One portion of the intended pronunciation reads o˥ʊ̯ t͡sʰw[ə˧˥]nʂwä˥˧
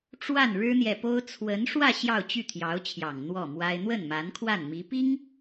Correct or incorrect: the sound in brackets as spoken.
correct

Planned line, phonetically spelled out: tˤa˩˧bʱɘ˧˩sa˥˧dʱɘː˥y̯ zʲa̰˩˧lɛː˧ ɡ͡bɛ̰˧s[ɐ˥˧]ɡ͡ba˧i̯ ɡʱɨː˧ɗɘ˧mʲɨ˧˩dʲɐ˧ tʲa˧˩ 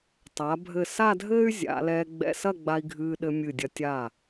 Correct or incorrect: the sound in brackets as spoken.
correct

